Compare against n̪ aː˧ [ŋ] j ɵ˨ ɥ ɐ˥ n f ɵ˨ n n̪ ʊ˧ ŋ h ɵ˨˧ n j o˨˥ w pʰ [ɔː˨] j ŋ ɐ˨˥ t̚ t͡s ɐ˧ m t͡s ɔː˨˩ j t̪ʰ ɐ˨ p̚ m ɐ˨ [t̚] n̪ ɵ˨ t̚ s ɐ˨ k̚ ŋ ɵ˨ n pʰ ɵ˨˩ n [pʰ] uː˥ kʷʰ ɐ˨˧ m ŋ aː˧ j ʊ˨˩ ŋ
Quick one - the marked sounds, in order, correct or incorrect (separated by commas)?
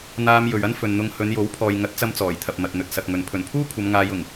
incorrect, correct, correct, correct